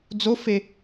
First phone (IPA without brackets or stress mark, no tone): d͡z